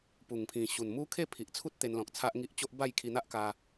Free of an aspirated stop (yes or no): no